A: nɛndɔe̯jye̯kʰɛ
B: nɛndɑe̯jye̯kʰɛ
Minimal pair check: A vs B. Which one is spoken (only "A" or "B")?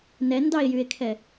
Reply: B